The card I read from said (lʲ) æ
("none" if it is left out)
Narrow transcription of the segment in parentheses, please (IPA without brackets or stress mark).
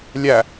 lʲ